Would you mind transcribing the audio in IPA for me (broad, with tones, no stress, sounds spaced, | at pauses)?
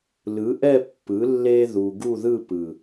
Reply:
l ɯ˨˥ ʔ ɛ˥˧ pː ɯ˨˥ lː e˥ ð u˧ ɡ u˥˧ ð ɯ˥˧ p ɯ˨˩